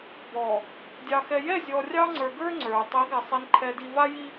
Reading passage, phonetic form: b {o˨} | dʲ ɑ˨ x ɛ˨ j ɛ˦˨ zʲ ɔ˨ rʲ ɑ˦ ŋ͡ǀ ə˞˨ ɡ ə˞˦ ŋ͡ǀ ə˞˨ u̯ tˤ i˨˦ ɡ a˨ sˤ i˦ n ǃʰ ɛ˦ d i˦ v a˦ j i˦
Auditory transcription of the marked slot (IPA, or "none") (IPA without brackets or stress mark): ɔ˨